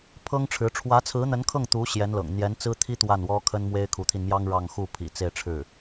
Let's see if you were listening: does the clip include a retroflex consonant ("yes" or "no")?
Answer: yes